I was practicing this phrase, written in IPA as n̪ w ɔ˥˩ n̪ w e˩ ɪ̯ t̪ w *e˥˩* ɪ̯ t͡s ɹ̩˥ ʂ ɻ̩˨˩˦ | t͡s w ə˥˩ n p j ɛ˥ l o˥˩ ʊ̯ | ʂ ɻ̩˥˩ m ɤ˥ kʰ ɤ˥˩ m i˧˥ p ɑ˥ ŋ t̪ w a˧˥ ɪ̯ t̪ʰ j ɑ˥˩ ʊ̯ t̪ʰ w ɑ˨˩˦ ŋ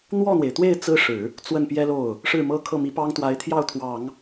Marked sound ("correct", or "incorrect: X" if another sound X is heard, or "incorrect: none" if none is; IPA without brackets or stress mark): correct